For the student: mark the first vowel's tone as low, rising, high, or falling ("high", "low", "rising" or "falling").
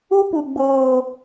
high